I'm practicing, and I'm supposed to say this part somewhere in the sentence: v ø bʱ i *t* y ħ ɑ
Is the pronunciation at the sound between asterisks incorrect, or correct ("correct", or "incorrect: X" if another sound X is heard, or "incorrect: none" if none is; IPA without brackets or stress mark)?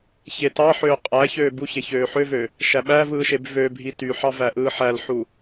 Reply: correct